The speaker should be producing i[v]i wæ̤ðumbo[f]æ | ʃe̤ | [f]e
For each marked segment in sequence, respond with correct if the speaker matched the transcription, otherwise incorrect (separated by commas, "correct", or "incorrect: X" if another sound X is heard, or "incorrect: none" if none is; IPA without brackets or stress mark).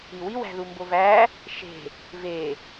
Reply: incorrect: w, incorrect: v, incorrect: v